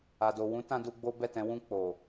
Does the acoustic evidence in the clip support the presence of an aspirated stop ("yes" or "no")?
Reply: no